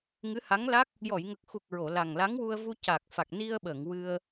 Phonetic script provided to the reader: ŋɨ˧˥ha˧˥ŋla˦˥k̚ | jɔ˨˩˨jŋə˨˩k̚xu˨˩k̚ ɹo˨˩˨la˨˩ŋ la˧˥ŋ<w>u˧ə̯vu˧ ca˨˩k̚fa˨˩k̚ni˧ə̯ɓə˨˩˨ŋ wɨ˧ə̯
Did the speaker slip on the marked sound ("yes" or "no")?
no